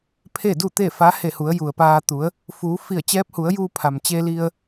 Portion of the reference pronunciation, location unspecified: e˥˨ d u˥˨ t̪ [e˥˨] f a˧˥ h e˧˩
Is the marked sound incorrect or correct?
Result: correct